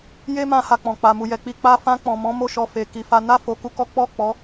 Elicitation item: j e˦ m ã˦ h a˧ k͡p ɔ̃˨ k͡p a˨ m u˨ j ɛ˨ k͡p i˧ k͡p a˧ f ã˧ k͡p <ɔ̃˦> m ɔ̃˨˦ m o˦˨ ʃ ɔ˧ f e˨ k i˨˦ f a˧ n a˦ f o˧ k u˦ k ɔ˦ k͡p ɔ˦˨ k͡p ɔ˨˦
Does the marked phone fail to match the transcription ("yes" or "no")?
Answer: yes